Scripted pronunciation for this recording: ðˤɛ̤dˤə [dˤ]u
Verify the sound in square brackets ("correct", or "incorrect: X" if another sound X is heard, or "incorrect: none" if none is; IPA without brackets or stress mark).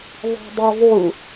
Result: incorrect: ðˤ